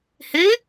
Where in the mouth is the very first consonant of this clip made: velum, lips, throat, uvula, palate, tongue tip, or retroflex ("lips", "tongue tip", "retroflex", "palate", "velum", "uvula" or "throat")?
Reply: throat